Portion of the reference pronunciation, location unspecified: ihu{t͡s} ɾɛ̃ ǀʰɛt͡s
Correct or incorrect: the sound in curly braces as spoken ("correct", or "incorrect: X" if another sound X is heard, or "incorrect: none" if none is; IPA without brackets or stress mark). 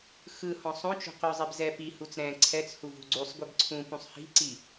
correct